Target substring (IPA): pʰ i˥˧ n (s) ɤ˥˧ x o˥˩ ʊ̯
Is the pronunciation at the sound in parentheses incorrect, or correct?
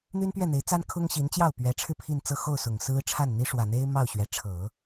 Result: incorrect: t͡s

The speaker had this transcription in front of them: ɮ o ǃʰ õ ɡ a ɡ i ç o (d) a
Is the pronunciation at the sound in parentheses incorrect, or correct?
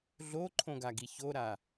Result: incorrect: ɾ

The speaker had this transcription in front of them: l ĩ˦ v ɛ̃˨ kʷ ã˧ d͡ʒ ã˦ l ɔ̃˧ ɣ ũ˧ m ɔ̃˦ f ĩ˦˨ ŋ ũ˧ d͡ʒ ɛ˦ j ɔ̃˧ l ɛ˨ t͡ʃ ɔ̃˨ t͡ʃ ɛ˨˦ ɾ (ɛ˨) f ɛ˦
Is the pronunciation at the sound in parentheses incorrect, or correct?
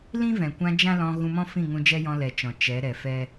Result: correct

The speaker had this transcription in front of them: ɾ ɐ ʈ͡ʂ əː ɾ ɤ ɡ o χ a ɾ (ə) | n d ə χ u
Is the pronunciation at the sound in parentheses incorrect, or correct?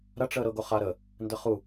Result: correct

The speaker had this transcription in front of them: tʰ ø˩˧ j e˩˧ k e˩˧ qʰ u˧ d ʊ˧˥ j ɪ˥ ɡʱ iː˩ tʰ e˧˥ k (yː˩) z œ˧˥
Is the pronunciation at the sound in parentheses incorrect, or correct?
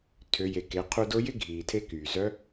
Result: correct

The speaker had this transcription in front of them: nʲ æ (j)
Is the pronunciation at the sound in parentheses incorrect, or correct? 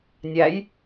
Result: correct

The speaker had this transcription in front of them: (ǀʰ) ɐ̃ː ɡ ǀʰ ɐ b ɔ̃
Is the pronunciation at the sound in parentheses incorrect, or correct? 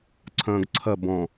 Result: correct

